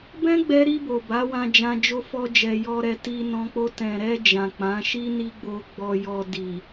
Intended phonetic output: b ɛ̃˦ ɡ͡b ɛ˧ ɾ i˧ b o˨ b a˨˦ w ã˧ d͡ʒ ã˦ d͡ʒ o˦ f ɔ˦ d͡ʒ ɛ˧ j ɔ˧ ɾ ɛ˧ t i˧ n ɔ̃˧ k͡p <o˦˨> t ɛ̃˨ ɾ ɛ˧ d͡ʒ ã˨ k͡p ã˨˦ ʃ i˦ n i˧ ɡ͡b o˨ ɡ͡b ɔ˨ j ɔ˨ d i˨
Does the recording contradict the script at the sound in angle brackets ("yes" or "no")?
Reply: yes